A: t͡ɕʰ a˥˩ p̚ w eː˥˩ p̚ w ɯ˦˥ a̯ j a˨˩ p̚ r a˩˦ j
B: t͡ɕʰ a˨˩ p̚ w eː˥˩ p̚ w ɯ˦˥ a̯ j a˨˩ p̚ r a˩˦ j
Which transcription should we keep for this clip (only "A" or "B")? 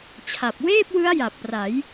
B